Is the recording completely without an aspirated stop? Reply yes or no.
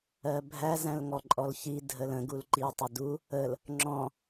yes